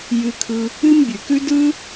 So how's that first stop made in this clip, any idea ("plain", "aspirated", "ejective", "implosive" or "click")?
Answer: aspirated